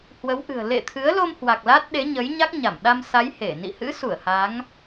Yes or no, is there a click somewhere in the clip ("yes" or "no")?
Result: no